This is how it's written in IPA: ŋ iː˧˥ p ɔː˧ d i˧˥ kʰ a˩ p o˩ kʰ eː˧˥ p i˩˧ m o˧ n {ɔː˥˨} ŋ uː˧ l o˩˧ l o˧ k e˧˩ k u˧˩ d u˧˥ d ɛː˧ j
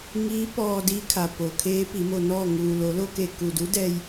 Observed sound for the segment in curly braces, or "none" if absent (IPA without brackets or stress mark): ɔː˥˨